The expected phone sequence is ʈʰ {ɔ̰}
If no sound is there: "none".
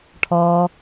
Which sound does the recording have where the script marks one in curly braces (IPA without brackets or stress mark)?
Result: ɔ